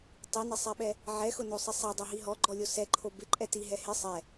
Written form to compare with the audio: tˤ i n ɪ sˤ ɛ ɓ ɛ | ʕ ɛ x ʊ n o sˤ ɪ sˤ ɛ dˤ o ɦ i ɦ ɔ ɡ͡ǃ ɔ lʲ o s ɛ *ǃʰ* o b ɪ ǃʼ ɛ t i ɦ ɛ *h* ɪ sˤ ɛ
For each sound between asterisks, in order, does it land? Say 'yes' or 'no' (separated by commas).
yes, yes